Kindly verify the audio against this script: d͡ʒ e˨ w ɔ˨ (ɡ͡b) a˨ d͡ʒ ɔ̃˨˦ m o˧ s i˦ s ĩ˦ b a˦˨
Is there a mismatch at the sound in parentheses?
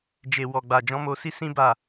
no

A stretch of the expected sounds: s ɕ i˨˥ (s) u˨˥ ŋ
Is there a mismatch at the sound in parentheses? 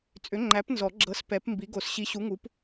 yes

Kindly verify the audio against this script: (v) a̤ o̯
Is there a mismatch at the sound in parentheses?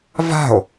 no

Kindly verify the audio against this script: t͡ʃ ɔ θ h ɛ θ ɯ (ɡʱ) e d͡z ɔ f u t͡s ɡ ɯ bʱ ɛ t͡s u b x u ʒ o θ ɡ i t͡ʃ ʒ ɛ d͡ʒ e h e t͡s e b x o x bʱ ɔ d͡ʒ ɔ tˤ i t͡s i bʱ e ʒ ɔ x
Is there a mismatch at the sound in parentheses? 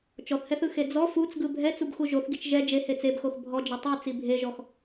yes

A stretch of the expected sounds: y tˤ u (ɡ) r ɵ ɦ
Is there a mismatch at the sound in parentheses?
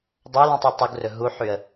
no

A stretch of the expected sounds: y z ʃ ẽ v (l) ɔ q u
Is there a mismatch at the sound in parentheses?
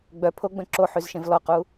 no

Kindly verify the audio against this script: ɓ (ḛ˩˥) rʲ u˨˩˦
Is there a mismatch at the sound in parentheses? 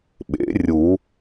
no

